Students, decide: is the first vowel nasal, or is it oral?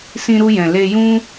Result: nasal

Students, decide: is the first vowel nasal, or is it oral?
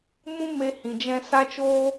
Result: nasal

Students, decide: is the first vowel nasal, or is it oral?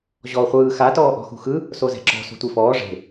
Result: oral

